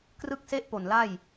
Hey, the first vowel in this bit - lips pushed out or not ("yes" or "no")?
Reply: no